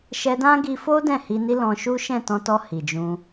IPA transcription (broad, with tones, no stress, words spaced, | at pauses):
ʃɛ˧dã˦ɡi˧fo˦ dɛ̃˦˨hi˧ni˦ lɔ̃˧ʃu˦ ʃɛ̃˦˨tɔ̃˧tɔ˧ hi˨d͡ʒũ˧